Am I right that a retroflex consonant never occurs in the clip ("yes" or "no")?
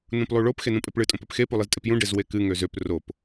no